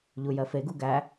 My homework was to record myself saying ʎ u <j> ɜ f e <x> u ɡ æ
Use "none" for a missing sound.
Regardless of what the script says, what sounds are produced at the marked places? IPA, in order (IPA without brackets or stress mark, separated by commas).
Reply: j, ɡ